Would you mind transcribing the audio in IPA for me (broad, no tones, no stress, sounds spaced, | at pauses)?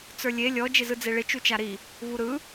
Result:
t͡s ə˞ lʲ e lʲ ɔ d͡ʒ ɪ z ɯ d͡z e ɭ ɪ t͡ʃ u t͡ʃ a ɾ i | v u ɾ ɯ